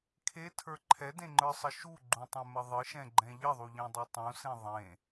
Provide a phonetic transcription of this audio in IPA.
kʰ e tʰ ə˞ ǃʰ ɛ d ẽ ŋ͡ǃ ə˞ sˤ ə ʃ u ɡ͡ǃ ũ tˤ ɛ̃ m ə ðˤ ɨ ʃ ɛ̃ ɡ͡ǃ ɛ̃ ʎ ə ðˤ u ʎ ẽ dˤ e tˤ ũ s ẽ ðˤ ẽ

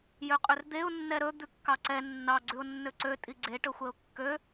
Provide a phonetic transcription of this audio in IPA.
j ø qʼ ø r d̪ e ʊ̯ nː ɛ ɾ ɵ d̪ ʉ kː ɑ ǀ ɛ nː ɑ ɡ͡ǀ ʉ ʊ̯ nː ø ǀ ø tʼ i ɡ͡ǀ e ʈ ɵ xʷ ɛ ʊ̯ kː ø

